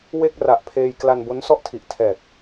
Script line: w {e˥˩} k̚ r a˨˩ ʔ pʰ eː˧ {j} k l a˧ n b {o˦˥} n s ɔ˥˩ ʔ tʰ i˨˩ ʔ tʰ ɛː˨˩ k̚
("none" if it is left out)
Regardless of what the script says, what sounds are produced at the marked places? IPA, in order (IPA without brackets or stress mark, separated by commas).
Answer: e˥˩, j, o˦˥